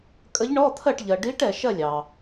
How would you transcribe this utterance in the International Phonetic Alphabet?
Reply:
kʼ ə˧˥ ʎ ɳ ɔ˧˥˧ t̪ʰ ɜ˥˨ ʈ ʎ ɜ˨ ɖ i˧˥ ʈ ɛ˨ ʃ ɜ˥˨ lʲ ɑ˨

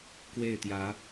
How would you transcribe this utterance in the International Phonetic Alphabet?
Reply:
k w e˥˨ ɪ̯ t̪ j ä˨˦

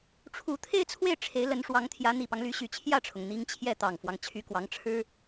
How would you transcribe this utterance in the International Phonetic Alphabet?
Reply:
ʈ͡ʂʰ u˨˩ t̪ʰ e˥˧ ɪ̯ t͡sʰ w e˥˩ ɪ̯ ʈ͡ʂʰ e˧˥ ɪ̯ l ə˧˥ n ʂ w ɑ˧˥ ŋ t̪ʰ j ä˧˥ n̪ i˨˩ p ɑ˦ ŋ l y˧˥ ɕ y˨˩ t͡ɕʰ j ä˥˩ ʈ͡ʂʰ ʊ˩ ŋ n̪ i˥ ŋ t͡ɕʰ j ɛ˥˩ t̪ ɑ˨˩ ŋ f w ɑ˦ ŋ t͡ɕʰ y˧˥ k w ɑ˧˥ ŋ ʈ͡ʂʰ ɻ̩˥

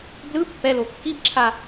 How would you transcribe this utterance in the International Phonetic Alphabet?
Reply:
b l ɯ pː ɛ l o kː i b ǁʰ a

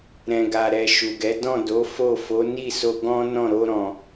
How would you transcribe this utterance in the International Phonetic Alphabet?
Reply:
ɾ ɛ̃˨ ɡ a˨ ɾ ɛ˨ ʃ u˨ ɡ ɛ˨˦ d ɔ̃˦˨ d o˨˦ f o˦˨ f o˨˦ n i˦˨ s o˧ ɡ ɔ̃˦ n ɔ̃˦˨ ɾ o˧ ɾ ɔ̃˨

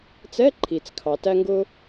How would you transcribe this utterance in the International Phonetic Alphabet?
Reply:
t͡s ɛ˧˥˧ ǃʰ i˩ t͡s kʰ ɑ˩ t æ˧ ŋ ɡ ʊ˧

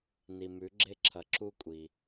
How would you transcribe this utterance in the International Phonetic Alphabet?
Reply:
n i˩ m ʉ˩˧ ɡ͡ǁ e˧ ǁʰ ɐ˩ ǁ u˧ kʷʼ i˩

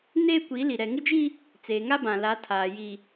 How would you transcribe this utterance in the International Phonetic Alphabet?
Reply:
n eː˦ kʷ i˨˦ l i˨ ɾ ɛ˨ ŋ ɪ˦ d͡ʒ i˦ | t͡s eː˨ ŋ a˦ b ã˨ l a˨˦ tʰ aː˨ j i˨

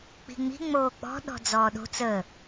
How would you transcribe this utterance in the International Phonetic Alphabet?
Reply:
k͡p i̤ ŋ͡m i̤ ŋ͡m oː k͡p ɔ̤ ɗ ɔ̤ d͡z ɔː ɗ o̤ t͡s əː

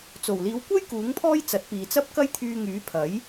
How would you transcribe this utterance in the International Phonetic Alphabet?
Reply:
t͡s o˨˩ w l iː˨˧ w kʷ ɐ˥ j k uː˨˥ ŋ pʰ ɔː˥ j t͡s ɐ˨˥ t̚ p iː˨ t͡s ɐ˥ p̚ k ɐ˥ j t̪ʰ yː˧ ŋ yː˨˥ pʰ ɐ˨˥ j

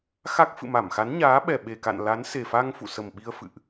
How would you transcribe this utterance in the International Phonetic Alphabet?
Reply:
x a˦˥ k̚ f ɨ̰˧˨ m a˧˩ m x a˨˦ n ɲ aː˨˦ ɓ ɛ˨˩ ɓ e˨˩ k a̰˧˨ n l a˨˦ n s e˨˩ f a˧ ŋ f ṵ˧˨ s ə˨˩ m ɓ i˧ ə̯ f ɨ̰˧˨ ʔ

